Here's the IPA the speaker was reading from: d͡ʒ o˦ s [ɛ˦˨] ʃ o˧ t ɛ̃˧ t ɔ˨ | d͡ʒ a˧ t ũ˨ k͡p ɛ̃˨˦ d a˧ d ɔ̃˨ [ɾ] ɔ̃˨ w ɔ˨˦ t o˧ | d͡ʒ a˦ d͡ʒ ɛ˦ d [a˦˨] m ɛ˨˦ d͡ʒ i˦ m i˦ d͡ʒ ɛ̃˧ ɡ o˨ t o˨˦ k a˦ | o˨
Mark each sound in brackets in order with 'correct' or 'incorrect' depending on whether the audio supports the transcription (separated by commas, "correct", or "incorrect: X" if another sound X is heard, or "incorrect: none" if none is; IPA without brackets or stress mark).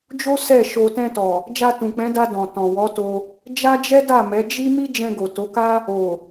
correct, incorrect: t, correct